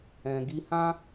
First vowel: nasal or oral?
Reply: nasal